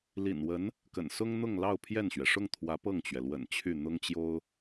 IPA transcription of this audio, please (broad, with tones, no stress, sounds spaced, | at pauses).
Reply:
l ḭ˨˩ n w ə˧˥ n | k ə̰˨˩ n s ʊ˥ ŋ n̪ ʊ˥˧ ŋ l ɑ˥˧ ʊ̯ pʰ j ɛ˥˩ n ɕ ɥ ɛ˩ ʂ ʊ˥˩ ŋ t̪ʰ w ä˧˥ p ɤ˥˩ ŋ t͡ɕ ɥ ɛ˩ l w ə̰˨˩ n t͡ɕʰ y˥˩ n̪ ʊ˥ ŋ t͡ɕ j o˥ ʊ̯